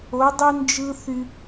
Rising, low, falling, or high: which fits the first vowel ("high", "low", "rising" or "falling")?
rising